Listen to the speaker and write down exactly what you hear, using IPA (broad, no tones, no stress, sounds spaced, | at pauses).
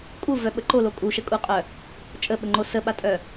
kʼ u v œ ɓ ə ǃ o l o kʼ u ʃ ə kʼ u qʼ œ | t͡ʃʼ ə ɓ ə ŋ͡ǃ o s ə ɓ a tʼ œ